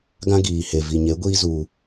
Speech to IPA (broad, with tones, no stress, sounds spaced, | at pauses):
ɡ ã˦ ɡ iː˨ h e˨ v i˨ ɲ e˨˦ ɡʷ iː˦ z u˧